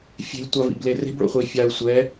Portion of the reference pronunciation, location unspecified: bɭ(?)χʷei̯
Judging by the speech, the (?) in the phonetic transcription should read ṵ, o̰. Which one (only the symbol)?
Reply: o̰